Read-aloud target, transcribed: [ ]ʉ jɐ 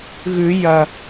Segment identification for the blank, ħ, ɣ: ɣ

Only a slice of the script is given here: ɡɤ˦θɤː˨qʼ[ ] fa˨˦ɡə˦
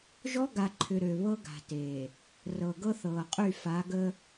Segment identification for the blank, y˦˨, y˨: y˦˨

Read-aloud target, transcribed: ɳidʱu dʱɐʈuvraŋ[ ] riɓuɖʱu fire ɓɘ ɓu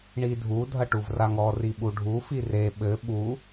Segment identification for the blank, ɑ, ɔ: ɔ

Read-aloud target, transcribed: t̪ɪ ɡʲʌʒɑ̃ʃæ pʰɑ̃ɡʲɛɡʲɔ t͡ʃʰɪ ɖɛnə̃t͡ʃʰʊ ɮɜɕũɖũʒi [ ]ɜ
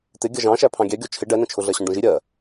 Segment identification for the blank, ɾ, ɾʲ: ɾʲ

